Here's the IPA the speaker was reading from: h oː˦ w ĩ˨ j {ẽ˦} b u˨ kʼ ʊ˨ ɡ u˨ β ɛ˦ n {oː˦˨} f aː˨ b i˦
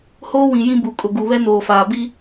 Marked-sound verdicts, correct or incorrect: incorrect: ĩ˦, incorrect: oː˨

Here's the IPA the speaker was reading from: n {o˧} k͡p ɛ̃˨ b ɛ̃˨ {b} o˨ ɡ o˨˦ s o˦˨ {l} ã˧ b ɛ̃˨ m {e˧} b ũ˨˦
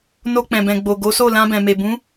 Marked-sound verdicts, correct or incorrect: correct, incorrect: ɡ͡b, correct, incorrect: e˨

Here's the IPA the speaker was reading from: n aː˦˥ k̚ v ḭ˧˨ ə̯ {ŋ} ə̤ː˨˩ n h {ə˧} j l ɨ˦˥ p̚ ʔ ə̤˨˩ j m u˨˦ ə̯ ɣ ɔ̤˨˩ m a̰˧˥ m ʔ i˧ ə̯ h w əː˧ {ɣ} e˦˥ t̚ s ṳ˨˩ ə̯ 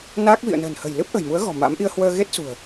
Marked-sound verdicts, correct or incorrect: incorrect: n, incorrect: ə̤˨˩, correct

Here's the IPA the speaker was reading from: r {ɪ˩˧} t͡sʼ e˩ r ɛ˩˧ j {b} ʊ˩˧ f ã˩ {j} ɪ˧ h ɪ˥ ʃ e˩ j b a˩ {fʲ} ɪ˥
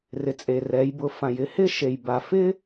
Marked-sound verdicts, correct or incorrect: correct, correct, correct, incorrect: f

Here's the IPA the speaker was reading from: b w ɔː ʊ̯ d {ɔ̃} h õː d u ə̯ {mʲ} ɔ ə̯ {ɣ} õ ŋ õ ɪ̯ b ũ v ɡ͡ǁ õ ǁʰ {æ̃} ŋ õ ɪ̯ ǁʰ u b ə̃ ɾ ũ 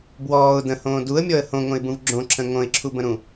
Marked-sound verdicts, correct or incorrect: incorrect: ə̃, correct, incorrect: h, incorrect: ə̃

